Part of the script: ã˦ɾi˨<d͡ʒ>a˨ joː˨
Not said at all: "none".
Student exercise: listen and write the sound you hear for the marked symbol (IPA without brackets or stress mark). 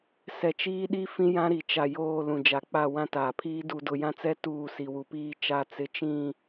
t͡ʃ